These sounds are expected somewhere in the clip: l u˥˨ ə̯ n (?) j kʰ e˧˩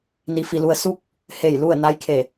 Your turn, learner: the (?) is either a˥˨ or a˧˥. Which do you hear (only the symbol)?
a˧˥